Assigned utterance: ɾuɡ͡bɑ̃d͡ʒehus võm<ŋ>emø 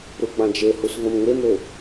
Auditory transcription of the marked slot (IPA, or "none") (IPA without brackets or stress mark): ŋ